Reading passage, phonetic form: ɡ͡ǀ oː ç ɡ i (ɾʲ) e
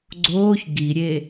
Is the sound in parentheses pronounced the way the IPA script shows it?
yes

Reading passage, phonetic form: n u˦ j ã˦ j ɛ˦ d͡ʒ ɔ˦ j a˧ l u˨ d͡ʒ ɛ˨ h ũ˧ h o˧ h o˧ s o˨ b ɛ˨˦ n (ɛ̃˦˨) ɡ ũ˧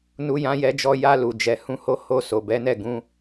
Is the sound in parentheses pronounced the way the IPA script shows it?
no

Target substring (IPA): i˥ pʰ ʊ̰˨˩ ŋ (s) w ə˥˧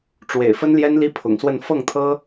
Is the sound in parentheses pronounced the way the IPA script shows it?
yes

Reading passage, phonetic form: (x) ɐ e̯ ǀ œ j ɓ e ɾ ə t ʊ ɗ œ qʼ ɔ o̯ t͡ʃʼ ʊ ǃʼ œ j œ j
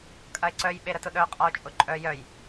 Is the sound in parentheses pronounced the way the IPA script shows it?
no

